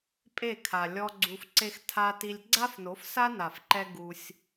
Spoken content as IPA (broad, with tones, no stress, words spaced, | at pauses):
pʼe˦˨kʰa˨ lʲɔ˦ɡ͡ǀu˧f ǀe˦xtʰa˦ti˦lʲ ɡ͡ǀa˦fno˨˦fsa˦na˨f ǃɛ˦ɡu˧sʲ